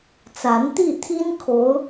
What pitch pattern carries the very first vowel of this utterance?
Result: rising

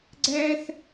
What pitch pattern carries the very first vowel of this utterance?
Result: high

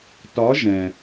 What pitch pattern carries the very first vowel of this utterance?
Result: rising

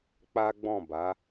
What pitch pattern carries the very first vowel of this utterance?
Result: high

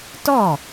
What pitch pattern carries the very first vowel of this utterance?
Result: falling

